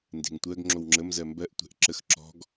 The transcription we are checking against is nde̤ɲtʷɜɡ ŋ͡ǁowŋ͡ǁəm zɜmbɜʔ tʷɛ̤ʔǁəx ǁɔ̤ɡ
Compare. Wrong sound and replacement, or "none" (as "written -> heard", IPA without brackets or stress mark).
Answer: ɲ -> ŋ